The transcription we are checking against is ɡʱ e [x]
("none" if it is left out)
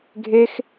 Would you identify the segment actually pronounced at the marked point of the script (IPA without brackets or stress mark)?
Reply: x